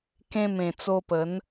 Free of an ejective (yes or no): yes